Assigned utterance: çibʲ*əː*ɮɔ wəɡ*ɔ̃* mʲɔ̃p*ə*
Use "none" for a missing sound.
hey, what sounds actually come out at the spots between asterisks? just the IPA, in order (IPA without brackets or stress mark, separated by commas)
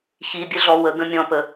ə, ə̃, ə